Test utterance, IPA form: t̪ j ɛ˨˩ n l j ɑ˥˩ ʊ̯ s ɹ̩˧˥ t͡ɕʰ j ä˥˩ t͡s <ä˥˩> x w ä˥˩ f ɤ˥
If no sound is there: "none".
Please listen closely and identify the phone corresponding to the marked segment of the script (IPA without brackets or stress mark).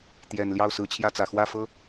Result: ä˨˩